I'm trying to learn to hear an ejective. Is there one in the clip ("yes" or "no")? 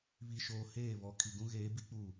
no